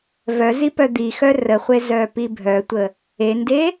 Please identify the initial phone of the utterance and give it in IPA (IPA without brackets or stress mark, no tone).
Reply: v